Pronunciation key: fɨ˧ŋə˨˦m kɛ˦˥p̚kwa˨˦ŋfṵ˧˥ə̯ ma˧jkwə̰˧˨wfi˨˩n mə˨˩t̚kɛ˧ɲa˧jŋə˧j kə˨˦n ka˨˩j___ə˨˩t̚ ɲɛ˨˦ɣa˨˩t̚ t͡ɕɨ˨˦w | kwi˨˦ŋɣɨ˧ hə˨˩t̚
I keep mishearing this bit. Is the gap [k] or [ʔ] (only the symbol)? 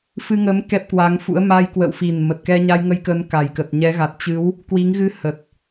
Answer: k